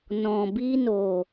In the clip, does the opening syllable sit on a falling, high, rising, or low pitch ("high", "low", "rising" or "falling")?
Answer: low